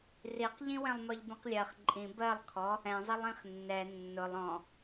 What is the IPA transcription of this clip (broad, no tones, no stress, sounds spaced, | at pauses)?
r i q ʎ ĩ w ɛ̃ lˠ m ɒ ʎ b ĩ q lʲ ɜ χ ǃʼ ĩ b ɜ lˠ kʰ ɔ | ɛ̃ zˤ ɛ lˠ ĩ χ nː ɛ nː ʊ lˠ ɔ̃